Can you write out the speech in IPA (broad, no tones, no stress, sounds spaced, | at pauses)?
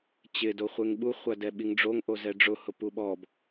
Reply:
t͡ɕ ɪ d o χʷ e ŋ ɓ u χʷ a d ɛ ɓ i ŋ ɖ͡ʐ o ŋ ʔ o z ɛ ɖ͡ʐ ʊ h ʊ p u ɓ ɔ b